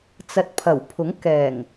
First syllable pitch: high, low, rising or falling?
low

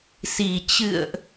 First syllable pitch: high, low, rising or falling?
low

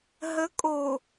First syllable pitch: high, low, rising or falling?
rising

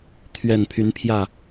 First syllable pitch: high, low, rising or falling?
low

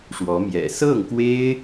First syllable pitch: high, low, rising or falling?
rising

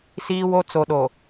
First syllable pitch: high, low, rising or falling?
low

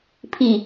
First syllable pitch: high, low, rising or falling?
falling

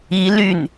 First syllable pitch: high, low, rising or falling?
rising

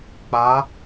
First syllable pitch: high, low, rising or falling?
rising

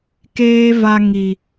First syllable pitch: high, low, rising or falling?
high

